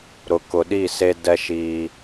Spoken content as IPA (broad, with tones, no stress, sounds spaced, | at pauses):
ɾ ʊ˨ k ʊ˨ ɗ i˦˨ s e˦ d ɛ˦ ʃ iː˦